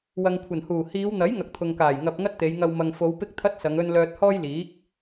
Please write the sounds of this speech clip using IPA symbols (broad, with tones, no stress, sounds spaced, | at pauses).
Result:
w ɐ˨ ŋ kʷʰ ɐ˨˩ n h uː˨˩ h iː˨˧ w n̪ ɐ˨˥ j ŋ ɐ˨ k̚ t̪ʰ ʊ˨ ŋ k aː˨˩ j ŋ ɐ˧ p̚ ŋ ɐ˥ t̚ t̪ e˨˧ j ŋ ɐ˧ w m ɐ˨ ŋ f o˨˧ w p ɪ˥ k̚ t̪ʰ ɐ˥ t̚ s ɐ˨˧ ŋ ɵ˥ n l œː˧ t̚ h ɔː˥ j l iː˨˥ k̚